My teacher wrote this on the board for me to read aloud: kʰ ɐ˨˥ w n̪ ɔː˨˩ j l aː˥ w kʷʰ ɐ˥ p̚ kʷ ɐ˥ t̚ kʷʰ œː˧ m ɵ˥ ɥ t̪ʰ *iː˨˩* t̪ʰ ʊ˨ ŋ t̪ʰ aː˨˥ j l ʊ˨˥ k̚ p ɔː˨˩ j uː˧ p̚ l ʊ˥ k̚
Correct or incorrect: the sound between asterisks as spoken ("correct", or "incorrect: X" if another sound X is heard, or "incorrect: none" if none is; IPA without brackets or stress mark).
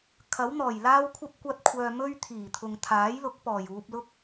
correct